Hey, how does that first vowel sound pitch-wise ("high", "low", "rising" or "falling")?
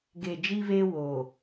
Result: low